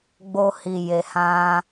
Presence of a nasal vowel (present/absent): present